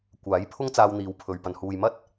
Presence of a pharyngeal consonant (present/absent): absent